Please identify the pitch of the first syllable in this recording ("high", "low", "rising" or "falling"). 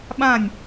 falling